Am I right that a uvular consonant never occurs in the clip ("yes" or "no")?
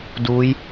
yes